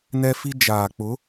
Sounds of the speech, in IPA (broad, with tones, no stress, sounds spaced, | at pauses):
n ɛ˦ f i˦ d͡ʒ aː˨ k͡p ʊ˨˦